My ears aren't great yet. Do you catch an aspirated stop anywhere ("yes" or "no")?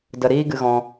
no